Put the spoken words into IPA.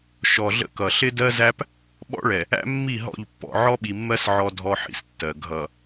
ʃ ɔ˨ ɮ ə̰˦ k ʌ˨ ɬ ɪ˦ d ɜ˦ z æ˦ p | ɓ ɔ̰˦ ɭ ɛ˨ | æ̰˦ mː i˦˨ ɦ ɔ̰˦˨ ʎ pː ɔ̰˨ ʕ ɔ˦ ɓ i˨ mː ɜ˦ s ʕ ɔ˦ dʱ ɔ˦ ħ ḭ˨ s tː ɜ˨ ɡʱ ʌ˨

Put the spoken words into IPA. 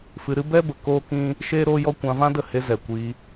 f ɨ˧ ɾ ɨ˦ b ɛ˦ b ə˨ k oː˦ k ĩ˦ | ʃ eː˦ ɾ oː˦ j ɔ˦ kʷ ã˧ v ã˦ d ə˦˨ h e˧ z ɛ˨ kʷ iː˧

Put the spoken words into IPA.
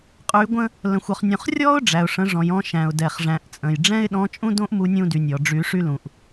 qʼ y˩˧ ɡʷ ə̃˧ | l ə̃˩ xʷ ɔ˩ χ nʲ ũ˩ χ rʲ ɔ˥ ʊ̯ ɖ͡ʐ æ˩ ʊ̯ ʂ ə̃˩˧ ʐ ɔ̃˩ j ɔ̃˧ ʃ æ̃˩ ʊ̯ d ɛ˩ χ ʐ æ̃˩˧ ʔ t͡sʼ ə̃˩ j ɖ͡ʐ ɛ̃˥ ɪ̯ ɗ ɔ̃˧˥ t͡ʃʼ ũ˥ d õ˥ ʔ m u˧ nʲ ũ˧ d y˩ nʲ ɔ˩ ɖ͡ʐ y˩˧ ʂ y˧ l ũ˩ ʔ

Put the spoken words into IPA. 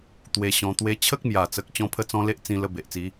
t̪ w e˧ ɕ ɔ̃˧ t̪ w e˧ t͡ɕʰ ə˦ k̚ m j a˨˩ t͡s ə˨ k̚ t͡ɕ ɔ̃˦ pʰ ə˥˧ t͡s ɔ̃˦ l e˦ ʔ t͡s ĩ˧ l ə˧ b e˨ ʔ t͡s i˨˦

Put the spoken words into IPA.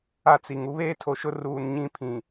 a˦ t͡s i˨ ŋ u˦ β eː˦ tʰ o˨ ʃ ʊ˦ r uː˨ n ɲ ĩ˦ pʰ ĩ˨

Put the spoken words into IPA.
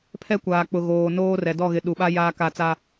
pʰ ɛ˦ kʷ aː˨ k͡p ʊ˨ ɣ oː˨ n oː˦ r ɛ˨ d ɔ˦˨ ɣ ɪ˨ ɗ u˨ ɓ a˦ j aː˦ k a˦˨ t͡s a˦

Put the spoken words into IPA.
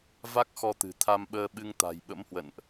v a˦˥ k̚ x ɔ˧ t̪ ɨ̤˨˩ t̪ʰ a˧ m ɓ əː˧ ɓ ɨ˧ ŋ t̪ a̤˨˩ j ɓ ə̰˧˥ m h w ə̰˧˨ n ʔ

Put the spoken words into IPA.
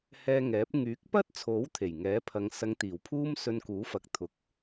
h ɛː˧ ŋ ɛː˨˥ p̚ ŋ yː˨˥ k̚ p ɐ˥ t̚ t͡sʰ o˨˥ w t̪ʰ e˨˩ j ŋ ɛː˨˥ pʰ ɐ˨˧ ŋ s ɐ˨˧ ŋ t̪ iː˨˩ w pʰ uː˥ m s ɵ˧ n k uː˨˥ f ɐ˨˥ k̚ t̪ʰ ʊ˨ k̚

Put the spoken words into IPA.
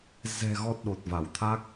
z ɛ̤˨˩ ɣ ɔ˨˩ t̚ ɗ o˨˩ t̚ v a˧˩ w t̪ʰ a˦˥ k̚

